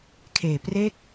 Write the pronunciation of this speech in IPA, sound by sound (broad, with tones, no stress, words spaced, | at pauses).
kʰeː˨˩ pre˦˥k̚